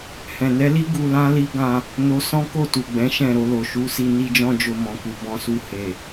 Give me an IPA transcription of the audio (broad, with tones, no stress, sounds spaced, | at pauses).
h ɛ̃˨ n ɛ˨˦ l i˦ ɡ u˧ l ã˦ l i˦ ɡ ã˧ | n o˧ s ɔ̃˦ k o˦˨ t u˨ ɡ͡b ɛ̃˨˦ ʃ ɛ̃˦˨ ɾ o˧ l o˨ ʃ u˨˦ s i˧ n i˧ d͡ʒ ɔ̃˧ d͡ʒ o˧ m ɔ̃˨ k u˨ b ɔ̃˧ s u˧ h e˨